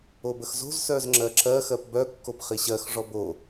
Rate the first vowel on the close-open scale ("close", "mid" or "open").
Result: mid